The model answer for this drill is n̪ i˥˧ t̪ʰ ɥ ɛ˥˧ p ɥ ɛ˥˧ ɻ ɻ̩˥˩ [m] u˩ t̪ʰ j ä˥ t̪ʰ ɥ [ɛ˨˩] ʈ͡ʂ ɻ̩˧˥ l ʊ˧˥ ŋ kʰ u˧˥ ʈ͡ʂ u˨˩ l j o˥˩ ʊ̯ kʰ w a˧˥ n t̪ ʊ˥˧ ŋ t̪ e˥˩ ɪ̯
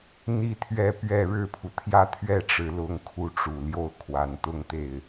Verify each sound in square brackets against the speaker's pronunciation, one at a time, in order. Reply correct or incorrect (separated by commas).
incorrect, incorrect